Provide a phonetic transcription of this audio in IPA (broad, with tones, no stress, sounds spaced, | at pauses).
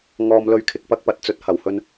ŋ ɔː˧ m l ɵ˧ ɥ kʰ ɪ˨ k̚ p ɐ˥ k̚ p ɐ˨ t̚ t͡s ɵ˧ t̚ h ɐ˨˩ w h ɵ˧ n